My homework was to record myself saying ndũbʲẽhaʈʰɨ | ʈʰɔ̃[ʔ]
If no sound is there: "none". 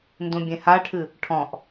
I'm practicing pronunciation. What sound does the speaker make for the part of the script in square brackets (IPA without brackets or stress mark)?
ʔ